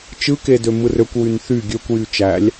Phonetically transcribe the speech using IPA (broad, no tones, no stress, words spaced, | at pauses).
t͡ʃɯke dømɯrøkʷwyn θy ɡʲøkʷjy t͡ʃælʲ